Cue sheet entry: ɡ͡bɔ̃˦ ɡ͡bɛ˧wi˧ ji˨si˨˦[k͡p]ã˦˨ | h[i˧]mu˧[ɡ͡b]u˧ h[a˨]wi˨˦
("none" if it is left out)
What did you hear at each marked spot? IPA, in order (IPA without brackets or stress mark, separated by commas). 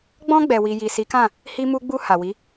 k, i˧, ɡ͡b, a˨